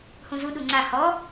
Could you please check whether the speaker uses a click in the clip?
yes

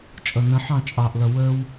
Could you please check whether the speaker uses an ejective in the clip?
yes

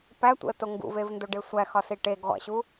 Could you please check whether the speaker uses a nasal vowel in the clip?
no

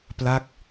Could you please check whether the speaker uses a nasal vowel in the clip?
no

